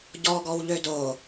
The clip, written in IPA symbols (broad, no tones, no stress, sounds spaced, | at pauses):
ɟ ɔ ɡ ɔ w ʎ ø d o